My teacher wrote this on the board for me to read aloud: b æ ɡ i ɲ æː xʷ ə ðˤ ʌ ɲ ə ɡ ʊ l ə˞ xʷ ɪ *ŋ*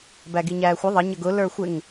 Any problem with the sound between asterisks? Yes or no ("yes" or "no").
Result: no